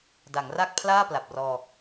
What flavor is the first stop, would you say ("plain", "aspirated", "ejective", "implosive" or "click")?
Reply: plain